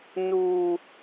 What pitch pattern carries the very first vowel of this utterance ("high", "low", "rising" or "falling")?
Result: low